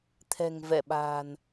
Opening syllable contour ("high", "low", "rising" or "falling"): low